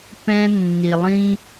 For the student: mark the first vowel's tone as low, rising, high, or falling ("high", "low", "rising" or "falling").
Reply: high